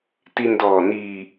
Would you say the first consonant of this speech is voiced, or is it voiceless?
voiceless